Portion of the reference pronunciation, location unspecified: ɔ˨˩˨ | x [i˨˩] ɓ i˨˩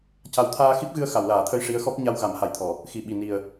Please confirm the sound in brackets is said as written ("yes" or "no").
yes